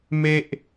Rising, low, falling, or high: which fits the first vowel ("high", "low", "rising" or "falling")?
high